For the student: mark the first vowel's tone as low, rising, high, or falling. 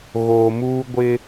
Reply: low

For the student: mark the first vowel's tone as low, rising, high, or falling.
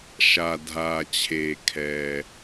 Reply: low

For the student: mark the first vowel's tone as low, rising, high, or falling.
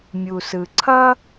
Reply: low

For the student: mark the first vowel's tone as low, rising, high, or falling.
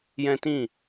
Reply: high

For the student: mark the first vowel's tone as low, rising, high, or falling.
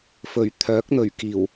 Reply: low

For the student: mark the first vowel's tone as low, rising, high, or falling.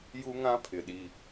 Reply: high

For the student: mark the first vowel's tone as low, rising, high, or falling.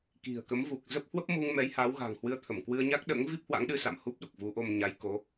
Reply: low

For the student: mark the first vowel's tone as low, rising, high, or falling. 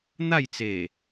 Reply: falling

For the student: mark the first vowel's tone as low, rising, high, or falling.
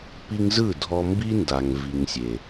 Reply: high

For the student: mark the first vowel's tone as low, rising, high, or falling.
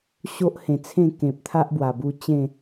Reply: high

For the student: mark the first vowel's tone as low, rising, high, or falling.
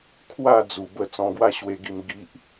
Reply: falling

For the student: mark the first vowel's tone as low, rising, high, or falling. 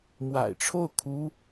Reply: low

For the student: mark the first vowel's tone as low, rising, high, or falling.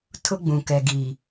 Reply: high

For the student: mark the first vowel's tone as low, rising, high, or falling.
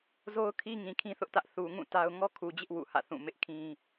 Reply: high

